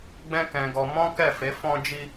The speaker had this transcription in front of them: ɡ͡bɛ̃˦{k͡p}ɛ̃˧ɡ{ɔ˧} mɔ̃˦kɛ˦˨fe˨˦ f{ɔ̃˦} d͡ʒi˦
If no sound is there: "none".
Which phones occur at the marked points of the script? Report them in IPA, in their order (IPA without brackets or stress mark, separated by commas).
k, ɔ˧, ɔ̃˦